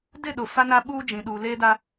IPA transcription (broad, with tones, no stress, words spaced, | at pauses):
dɪ˦˨ɗʊ˨ fa˦na˦ɓuː˦ d͡ʒĩ˨ɗuː˨ leː˦da˦